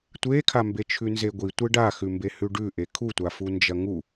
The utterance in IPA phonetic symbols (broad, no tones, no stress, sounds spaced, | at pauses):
tʷ e kʰ a m b e t͡ʃʰ ʉ n z e ɡʷ i tʷ e ɖ a x ʉ m b e h ʉ ɖ ʉ ʔ e kʰ u tʷ a f u n d͡ʒ ɐ ŋ u